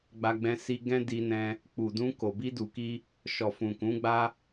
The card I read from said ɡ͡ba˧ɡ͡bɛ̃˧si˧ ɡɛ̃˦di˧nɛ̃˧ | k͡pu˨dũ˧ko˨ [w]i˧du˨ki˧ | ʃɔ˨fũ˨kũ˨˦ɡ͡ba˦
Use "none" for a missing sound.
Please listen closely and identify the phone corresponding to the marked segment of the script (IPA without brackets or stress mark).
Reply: b